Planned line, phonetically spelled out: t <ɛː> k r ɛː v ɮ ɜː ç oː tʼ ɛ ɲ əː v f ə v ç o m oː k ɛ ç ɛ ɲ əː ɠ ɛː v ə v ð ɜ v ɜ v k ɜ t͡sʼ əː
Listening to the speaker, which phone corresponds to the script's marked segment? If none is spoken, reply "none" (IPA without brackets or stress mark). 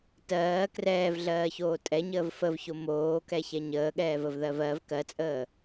ɜː